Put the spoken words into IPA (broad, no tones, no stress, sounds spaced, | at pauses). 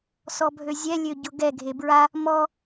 s ɔ bʱ ø zʲ ɛ lʲ ø ɟ ʊ ɡ ɛ ɡʱ e b ɹ a | m ɔ